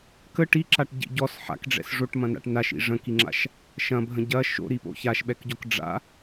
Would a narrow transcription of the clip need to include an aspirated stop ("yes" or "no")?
no